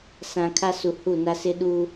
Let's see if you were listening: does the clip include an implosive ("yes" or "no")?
yes